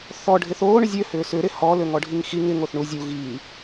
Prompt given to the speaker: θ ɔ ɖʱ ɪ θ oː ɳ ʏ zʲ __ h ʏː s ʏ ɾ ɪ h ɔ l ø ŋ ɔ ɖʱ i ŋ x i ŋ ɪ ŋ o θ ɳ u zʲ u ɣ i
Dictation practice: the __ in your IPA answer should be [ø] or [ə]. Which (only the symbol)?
ø